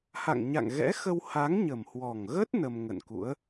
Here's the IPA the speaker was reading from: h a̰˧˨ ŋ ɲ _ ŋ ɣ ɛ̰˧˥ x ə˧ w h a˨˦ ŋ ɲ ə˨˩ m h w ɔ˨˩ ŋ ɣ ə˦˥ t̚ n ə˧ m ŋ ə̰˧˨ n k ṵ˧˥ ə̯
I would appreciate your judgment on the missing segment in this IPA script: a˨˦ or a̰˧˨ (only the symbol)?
a̰˧˨